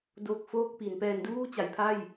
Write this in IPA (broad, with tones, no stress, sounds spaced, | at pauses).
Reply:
d o˨˩ k̚ f oː˥˩ k̚ p i˩˦ n p ɛː˧ n d uː˥˩ t͡ɕ a˩˦ j pʰ a˥˩ j